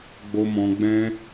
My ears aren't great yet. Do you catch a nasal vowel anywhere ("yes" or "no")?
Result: yes